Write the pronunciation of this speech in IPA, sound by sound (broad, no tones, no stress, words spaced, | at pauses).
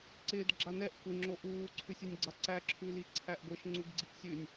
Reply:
ǀɪːd ɡ͡ǁanɛʔ kʷɪ ŋ͡ǁoʔuː ǀʰʉsʲʉnʲɡ͡ǀaǀæ ǁʰʉliǀʰæʔɡʷeʃ ŋ͡ǀuɡɡ͡ǀiʔsʲʉnʲ